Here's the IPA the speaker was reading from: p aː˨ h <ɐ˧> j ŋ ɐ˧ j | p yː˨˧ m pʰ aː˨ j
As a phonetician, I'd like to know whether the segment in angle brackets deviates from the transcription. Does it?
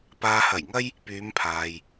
yes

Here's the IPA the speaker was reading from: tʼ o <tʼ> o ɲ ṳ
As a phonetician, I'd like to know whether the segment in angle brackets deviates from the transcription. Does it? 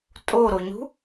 yes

